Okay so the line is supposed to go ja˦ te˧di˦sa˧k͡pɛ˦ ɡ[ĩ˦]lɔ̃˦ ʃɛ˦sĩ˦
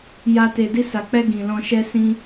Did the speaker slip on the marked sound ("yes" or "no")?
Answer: yes